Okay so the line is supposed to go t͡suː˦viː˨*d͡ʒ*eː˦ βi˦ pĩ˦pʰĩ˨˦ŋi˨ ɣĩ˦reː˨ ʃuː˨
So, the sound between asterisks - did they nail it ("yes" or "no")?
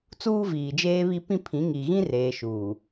yes